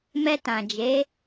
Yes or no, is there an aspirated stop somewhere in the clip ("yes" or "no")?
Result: no